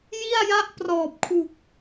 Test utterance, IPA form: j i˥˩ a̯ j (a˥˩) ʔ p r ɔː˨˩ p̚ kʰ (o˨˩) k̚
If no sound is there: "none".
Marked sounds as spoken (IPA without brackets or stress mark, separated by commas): a˥˩, u˨˩